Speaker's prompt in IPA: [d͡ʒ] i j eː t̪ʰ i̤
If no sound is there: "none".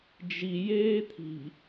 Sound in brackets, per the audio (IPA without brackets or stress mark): d͡ʒ